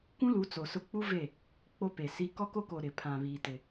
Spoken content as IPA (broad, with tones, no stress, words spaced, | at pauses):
kʷũ˦lu˨˦ t͡so˨sʊ˦ k͡pu˦ ve˦˨ | k͡po˦pe˨si˦ kɔ˦ko˦ko˨ ɾɪ˨pʰã˨βiː˨tɪ˨